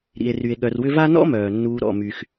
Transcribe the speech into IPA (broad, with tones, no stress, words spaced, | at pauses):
ɾḭ˩e̯ry˩e̯ ɠœ˨rwʏ˦va˥ nɔ̰˥mœː˩nːuː˨ ɾɔ̰˩my˩x